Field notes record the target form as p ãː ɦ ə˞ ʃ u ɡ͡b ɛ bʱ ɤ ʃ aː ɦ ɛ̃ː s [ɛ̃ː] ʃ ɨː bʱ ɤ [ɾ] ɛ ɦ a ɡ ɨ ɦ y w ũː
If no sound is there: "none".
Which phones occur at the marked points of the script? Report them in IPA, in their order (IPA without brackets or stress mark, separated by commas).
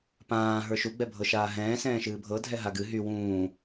ɛ̃ː, dʱ